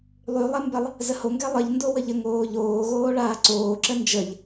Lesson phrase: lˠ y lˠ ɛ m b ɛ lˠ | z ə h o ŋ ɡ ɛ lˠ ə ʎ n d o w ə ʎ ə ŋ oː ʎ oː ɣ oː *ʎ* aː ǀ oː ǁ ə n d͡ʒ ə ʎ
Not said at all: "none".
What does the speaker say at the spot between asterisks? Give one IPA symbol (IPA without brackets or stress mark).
ɭ